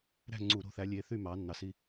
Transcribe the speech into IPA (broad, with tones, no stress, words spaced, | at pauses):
ɾæ̤˥˨ŋ͡ǀu˧˩˧ɾo̤˨˦θæ˨˦ lʲe˨˦ θy˥˨mɑ˨˦ nːɑ˨˦si˥˨